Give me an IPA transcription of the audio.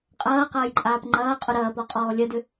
qʼ ɐː q ɐː j ǃʼ aː p ŋ͡ǃ ɐː qʼ ʊ ɾ ɐː p ɔ qʼ ɔː lʲ ɐ d ʏ

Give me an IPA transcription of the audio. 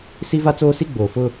s i˦ v a˦ t͡s oː˦ s i˦ ɡ͡b oː˨ f ʊ˦

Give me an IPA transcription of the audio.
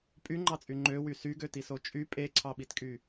pʼ y ŋ͡ǃ ɑ t͡sʼ y ŋ͡ǃ ø w y s y ɡ ø t i s o t͡ʃʼ y pʼ e ǀʰ ɑ ɓ i t kʼ y

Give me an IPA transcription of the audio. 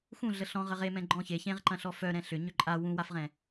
x ũ ɮ ə ɬ ɔ̃ ʁ ə ʁ e m ɛ̃ ɡ͡ǃ ɔ̃ ç e ç ẽ ʁ ǃ ɐ̃ ɬ ɔ f œ ɾ ɛ̃ ɬ ʏ ɲ ʏ ǃʼ a w ũ w a f ʁ ɛ̃

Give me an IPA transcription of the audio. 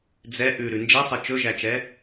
d͡z ɛ ʔ ʉ ɾ ʉ n d͡ʒ ɛ sˤ ɛ t͡ʃ ɵ ʒ æ t͡ʃ ɛ

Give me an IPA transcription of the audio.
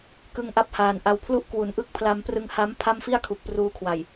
k ɯ˦˥ ŋ ʔ a˦˥ p̚ h aː˨˩ n ʔ a˧ w pʰ l u˥˩ ʔ k w u˩˦ n ʔ ɯ˥˩ k̚ pʰ l a˧ m p r ɯ˧ ŋ h a˦˥ m pʰ a˥˩ m f i˥˩ a̯ kʰ u˨˩ k̚ p r uː˦˥ kʰ w a˨˩ j

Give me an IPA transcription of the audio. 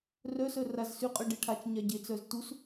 r œ s œ r a z s y qʼ œ ɖ e ʈʰ a t͡ʃ ɲ a ɟ e t͡s œ z t u s

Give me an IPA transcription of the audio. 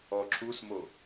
ɔ ǁʰ u s m o

